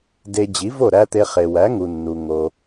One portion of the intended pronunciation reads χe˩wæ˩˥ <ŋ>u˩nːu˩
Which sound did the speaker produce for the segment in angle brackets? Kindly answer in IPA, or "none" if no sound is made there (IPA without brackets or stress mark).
ŋ